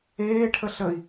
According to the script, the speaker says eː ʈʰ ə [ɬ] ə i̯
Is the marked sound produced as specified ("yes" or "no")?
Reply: yes